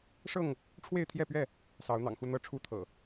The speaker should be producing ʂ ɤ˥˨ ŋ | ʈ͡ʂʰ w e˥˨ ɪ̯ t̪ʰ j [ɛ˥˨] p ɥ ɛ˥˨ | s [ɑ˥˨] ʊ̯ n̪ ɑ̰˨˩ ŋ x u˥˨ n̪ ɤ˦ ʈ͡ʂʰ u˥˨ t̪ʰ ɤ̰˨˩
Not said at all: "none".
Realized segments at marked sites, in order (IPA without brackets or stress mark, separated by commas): ɛ˥˨, ɑ˨˦